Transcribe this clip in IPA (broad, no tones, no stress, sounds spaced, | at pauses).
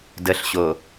d ə ɬ ɕ o